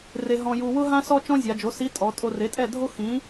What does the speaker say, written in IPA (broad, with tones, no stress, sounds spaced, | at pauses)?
r e˧ ɦ ɔ̃˧ j u˧ w ʊ˥ ɦ ã˥ s ɔ˥ t͡ʃ ɔ̃˥ zʲ a˩˧ d͡ʒ o˩˥ s i˧˥ tʼ ɔ˩˧ tʼ o˧ r e˩˥ tʼ ɛ˥˨ dʱ o˥ x ĩ˩˥